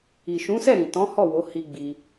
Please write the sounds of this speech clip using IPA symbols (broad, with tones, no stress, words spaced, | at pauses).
i˨ʃũ˨˦sɛ˦˨ ɾĩ˨tɔ̃˨˦hɔ˦˨ wo˨˦hi˧ ɡ͡bi˧